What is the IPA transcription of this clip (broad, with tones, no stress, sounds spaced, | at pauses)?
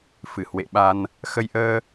f ɨ˧˩ h w ḛ˧˨ ɓ a˧ n | x ə˧ j ʔ əː˧